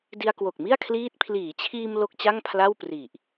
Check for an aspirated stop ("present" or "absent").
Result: present